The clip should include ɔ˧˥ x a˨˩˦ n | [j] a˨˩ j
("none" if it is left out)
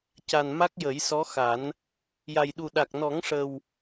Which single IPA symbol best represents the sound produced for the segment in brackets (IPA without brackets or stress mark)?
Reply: j